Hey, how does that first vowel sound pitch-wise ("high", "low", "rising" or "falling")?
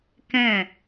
falling